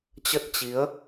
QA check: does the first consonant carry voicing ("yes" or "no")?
no